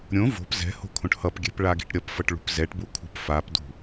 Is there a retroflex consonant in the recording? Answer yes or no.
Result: yes